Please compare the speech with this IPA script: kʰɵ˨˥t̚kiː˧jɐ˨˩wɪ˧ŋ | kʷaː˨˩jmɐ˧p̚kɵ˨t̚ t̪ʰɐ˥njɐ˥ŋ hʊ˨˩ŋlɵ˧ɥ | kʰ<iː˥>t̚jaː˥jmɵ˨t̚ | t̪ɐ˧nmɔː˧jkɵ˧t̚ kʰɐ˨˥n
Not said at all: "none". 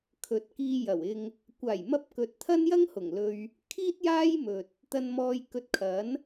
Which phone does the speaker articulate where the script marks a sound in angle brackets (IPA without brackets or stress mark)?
iː˥